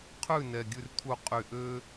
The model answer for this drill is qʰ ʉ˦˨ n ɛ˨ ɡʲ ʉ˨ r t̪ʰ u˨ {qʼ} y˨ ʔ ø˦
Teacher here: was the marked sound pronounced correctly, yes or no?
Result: yes